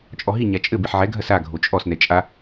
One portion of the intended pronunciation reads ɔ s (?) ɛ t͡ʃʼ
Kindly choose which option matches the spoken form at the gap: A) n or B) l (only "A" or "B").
A